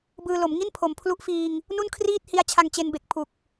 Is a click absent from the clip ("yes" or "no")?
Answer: yes